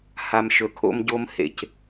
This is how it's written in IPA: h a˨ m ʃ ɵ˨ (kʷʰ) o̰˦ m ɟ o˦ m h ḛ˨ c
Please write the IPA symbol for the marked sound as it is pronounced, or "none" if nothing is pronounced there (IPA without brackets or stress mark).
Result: kʰ